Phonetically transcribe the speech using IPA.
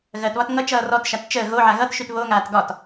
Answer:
ɣ ɜ t β ɒ t ŋ ʌ t͡ʃ ʌː r ɔ t ʃ a t t͡ʃ əː ɣ o ʕ a ɣ ʌ t ʃ y t β o ŋ aː t ɡ ɒ t

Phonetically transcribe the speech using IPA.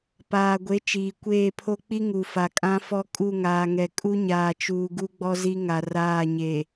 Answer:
p aː˨ ɡʷ e˨˦ t͡ʃ iː˨ kʷ eː˦˨ pʰ o˦ k͡p i˦ ŋ u˨ f a˨ kʼ ã˦ f ɔ˦ kʼ u˦˨ ŋ aː˨ ŋ ɛ˨ kʼ u˦ ɲ aː˨ t͡ʃ uː˨ ɡ u˦ ɡ͡b ɔ˦ z i˦ ŋ a˨ r aː˦˨ ɲ e˨

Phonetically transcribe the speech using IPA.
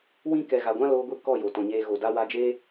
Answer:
w ĩ˦ k ɛ˨ ɣ a˨ ɡʷ ã˦ l oː˧ ɡʷ i˧ k ɔ˦˨ j o˨ t ɔ̃˨ ɲ eː˧ ɣ o˨ d a˧ w a˧ d͡ʒ eː˦

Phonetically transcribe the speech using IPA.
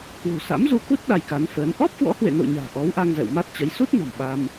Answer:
k w ṳ˨˩ s a̰˧˥ m z u˧ k u˦˥ t̚ ɗ a˧ j k a˨˦ n f əː˨˦ n ʔ ɔ˦˥ p̚ k w ɔ̰˧˥ h w ḛ˧˨ n o̰˧˨ ɲ a̤ː˨˩ ʔ ɔ˨˦ w ʔ a˧ ŋ z ɛ̰˧˨ w m a˦˥ t̚ t͡ɕ ə˨˦ j s u˦˥ t̚ n ɔ̤˨˩ m ɓ a˧ m

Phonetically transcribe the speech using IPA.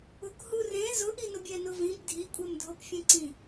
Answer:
ʊ k h u r ẽ z ʊ ʔ i n ʊ bʲ ɛ n ʊ v ĩ b dʱ i kʷʼ ɛ m dʱ o p fʲ ɛ̃ ǀ ĩ

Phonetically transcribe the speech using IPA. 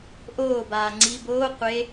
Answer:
ʔ oː b aː ŋ͡ǀ i b oː qʷ e

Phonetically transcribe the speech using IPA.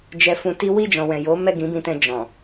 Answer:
d͡ʒ ɛ˧ f ũ˧ t i˦ w i˦˨ d͡ʒ ɔ̃˨ w ɛ̃˨ j o˨˦ m ɛ˦˨ ɡ ĩ˨˦ b ĩ˧ t ɛ̃˧ d͡ʒ ɔ̃˨

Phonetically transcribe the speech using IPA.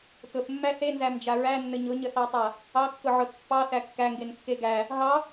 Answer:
t ʊ θ mː æ θ e n z æ m d͡ʒ a ɹ æ nː ə ɲ ʊ ɲ ə θ ɑ tˤ a | ɑ kː ʊ ʕ ʊ θ pː ɑ θ æ kː æ ŋ ɡ e n kː e ɡ æ | ɦ ɑ

